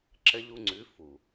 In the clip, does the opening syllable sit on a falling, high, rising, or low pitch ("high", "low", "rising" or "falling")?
high